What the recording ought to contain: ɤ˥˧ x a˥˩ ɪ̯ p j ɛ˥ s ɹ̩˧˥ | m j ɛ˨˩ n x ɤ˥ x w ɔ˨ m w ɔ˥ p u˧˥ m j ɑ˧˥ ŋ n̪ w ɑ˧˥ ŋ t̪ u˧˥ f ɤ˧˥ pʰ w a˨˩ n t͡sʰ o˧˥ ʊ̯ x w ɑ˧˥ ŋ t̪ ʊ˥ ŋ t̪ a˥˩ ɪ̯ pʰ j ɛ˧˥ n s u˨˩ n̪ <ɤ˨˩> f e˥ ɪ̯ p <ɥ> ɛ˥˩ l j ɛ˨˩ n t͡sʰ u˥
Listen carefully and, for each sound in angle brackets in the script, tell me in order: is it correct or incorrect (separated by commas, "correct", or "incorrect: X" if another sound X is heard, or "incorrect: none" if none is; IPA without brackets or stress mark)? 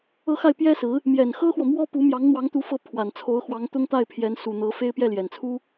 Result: incorrect: ɤ˧˥, incorrect: j